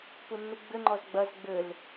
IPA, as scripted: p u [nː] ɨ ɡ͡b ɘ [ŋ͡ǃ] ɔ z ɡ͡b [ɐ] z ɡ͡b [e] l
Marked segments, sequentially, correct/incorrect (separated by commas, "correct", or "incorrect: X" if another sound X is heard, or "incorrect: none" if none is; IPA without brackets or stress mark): correct, correct, correct, incorrect: ɘ